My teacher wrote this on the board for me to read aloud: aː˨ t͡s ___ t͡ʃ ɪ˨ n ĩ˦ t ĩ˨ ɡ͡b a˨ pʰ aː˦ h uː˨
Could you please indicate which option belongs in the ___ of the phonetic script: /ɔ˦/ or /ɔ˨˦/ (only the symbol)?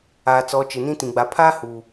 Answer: ɔ˨˦